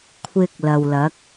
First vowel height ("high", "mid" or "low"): high